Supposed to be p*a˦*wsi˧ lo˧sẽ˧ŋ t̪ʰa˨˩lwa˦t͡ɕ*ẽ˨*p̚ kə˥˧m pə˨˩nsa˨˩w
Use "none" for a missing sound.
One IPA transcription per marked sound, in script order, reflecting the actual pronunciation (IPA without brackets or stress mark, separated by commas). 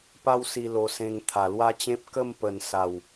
a˦, ẽ˦